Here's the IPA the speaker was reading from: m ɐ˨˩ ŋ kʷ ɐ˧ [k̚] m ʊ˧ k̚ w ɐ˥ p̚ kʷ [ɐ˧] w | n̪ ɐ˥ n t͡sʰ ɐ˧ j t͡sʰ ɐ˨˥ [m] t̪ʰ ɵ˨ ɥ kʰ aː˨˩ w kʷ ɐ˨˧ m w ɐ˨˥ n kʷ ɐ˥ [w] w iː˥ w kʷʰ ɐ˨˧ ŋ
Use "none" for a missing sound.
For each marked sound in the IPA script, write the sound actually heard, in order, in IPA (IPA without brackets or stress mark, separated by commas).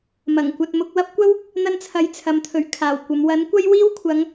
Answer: t̚, ɐ˥, m, j